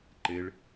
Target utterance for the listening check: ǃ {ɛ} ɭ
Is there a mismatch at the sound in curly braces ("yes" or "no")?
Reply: yes